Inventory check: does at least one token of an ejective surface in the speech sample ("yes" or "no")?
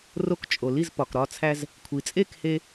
yes